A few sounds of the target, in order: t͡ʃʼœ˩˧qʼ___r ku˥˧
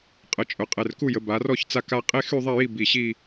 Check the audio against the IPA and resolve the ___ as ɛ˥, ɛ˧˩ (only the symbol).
ɛ˧˩